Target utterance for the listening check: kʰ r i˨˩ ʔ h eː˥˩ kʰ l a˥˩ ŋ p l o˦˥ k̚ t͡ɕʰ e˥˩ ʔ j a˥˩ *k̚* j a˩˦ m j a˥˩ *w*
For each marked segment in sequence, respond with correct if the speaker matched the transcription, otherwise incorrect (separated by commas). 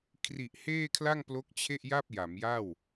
incorrect, correct